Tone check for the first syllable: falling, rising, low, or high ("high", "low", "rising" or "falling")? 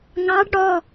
rising